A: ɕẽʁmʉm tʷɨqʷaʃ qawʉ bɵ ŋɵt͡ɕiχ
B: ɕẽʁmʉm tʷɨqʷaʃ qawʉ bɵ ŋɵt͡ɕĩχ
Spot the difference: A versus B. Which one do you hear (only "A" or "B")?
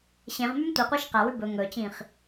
B